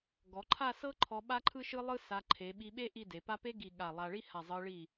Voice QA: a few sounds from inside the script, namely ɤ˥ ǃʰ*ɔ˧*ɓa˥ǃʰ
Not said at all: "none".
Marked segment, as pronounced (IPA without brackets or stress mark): ɔ˧